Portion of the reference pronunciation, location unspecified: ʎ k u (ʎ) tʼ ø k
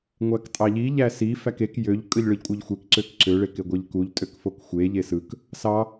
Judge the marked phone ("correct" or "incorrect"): correct